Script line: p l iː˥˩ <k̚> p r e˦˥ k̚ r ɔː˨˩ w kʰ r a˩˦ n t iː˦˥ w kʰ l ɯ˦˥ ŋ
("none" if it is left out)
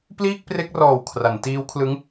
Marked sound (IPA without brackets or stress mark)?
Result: k̚